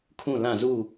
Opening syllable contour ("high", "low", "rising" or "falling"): falling